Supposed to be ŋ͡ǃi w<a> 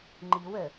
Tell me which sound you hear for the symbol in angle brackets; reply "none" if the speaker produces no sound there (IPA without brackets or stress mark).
ə